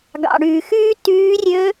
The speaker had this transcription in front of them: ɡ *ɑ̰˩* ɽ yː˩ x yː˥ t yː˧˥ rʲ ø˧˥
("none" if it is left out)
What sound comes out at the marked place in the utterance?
ɑ̰˩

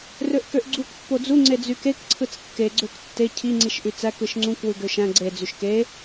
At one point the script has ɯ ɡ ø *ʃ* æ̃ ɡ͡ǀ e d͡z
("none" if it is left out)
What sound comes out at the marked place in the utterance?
ʃ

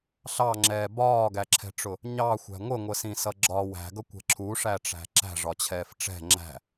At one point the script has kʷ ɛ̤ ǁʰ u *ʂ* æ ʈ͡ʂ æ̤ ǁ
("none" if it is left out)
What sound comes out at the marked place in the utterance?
ʂ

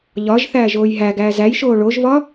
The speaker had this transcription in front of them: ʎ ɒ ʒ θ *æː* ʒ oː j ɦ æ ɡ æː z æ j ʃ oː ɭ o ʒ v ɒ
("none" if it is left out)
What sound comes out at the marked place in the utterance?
æː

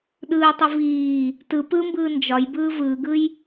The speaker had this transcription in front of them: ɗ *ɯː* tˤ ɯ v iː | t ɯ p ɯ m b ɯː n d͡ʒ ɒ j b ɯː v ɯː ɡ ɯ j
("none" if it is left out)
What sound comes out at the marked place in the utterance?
ɯː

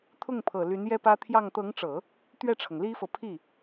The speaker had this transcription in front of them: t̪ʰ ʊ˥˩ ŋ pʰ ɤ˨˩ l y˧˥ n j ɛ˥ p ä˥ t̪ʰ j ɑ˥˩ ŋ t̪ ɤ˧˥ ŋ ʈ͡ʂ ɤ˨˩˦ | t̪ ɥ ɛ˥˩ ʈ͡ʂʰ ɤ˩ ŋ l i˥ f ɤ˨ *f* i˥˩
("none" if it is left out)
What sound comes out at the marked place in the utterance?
pʰ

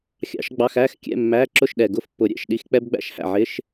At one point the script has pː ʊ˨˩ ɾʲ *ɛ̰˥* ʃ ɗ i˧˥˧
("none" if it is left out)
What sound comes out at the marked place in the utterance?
ɛ̰˨˩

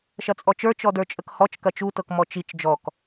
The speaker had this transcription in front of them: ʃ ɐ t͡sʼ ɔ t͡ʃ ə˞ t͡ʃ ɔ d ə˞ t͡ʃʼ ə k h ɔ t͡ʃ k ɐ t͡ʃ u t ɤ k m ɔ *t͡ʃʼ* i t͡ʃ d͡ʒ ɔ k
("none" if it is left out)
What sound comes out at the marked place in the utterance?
t͡ʃ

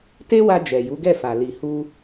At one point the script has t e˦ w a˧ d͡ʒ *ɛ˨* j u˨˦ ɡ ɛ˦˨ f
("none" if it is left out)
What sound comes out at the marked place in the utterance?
ɛ˨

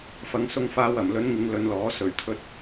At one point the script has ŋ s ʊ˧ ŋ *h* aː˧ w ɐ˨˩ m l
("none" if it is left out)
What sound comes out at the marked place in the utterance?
f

